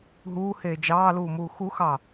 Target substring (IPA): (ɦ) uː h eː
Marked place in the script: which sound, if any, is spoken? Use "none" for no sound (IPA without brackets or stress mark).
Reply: ɦ